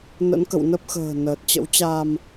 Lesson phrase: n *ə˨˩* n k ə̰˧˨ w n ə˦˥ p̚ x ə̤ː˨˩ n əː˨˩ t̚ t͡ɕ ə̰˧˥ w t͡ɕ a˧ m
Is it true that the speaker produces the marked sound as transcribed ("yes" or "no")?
no